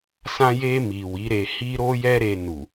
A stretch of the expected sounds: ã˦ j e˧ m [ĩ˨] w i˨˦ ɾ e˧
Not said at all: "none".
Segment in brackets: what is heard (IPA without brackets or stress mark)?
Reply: i˨